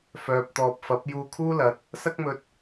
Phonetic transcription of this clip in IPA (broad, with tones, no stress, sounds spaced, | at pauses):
f œː˨ p̚ t̪ ɔː˨ p̚ f ɐ˨˥ p̚ j uː˧ kʰ uː˥ l ɐ˨˥ t̚ | s ɐ˥ k̚ m ɵ˧ t̚